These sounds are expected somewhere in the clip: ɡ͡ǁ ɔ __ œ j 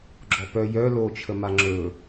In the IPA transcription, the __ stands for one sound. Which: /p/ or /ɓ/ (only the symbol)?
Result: p